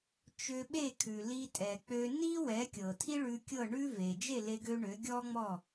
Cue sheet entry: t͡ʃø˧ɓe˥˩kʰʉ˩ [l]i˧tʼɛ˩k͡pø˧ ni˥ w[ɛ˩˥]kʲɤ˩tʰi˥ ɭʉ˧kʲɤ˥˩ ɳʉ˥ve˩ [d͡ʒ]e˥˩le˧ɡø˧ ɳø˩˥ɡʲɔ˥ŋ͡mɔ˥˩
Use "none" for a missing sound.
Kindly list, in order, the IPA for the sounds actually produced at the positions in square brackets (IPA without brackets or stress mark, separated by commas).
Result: l, ɛ˩˥, d͡ʒ